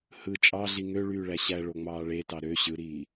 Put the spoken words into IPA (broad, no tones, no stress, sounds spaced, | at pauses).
h ɯ t͡ʃʼ ɑ ɮ i ŋ ø ɭ yː ɭ æ ɕ æ ɭ o ŋ͡m ɑː ɭ e t ɑ ɾ ø ɕ ɯ ɾ iː